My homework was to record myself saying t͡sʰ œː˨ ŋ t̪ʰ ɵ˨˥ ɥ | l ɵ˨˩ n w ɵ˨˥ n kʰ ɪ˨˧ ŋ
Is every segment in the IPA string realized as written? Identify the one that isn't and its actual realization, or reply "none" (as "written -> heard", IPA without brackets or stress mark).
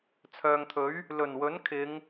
none